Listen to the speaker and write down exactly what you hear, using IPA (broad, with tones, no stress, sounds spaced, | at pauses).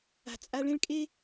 a̤˨ t͡sʼ a˧ ɭ ẽ˦ ɭ kʼ e˦